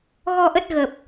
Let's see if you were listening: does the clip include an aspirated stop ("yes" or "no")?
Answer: no